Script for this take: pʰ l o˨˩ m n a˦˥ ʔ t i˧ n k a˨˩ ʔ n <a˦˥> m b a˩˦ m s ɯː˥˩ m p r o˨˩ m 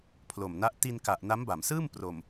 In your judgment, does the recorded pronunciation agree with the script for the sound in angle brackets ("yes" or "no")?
yes